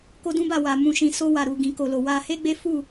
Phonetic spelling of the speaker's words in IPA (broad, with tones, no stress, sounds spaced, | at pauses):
k o˦ d ũ˦ b a˦˨ w a˨ m ũ˨ ʃ ĩ˨ s o˧ w a˨ ɾ u˨ ɡ ĩ˨ k o˨ l o˨ w a˧ h e˦ ɡ͡b e˦ f u˦˨